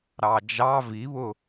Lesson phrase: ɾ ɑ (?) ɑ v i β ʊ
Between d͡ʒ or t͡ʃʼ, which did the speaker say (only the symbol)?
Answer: d͡ʒ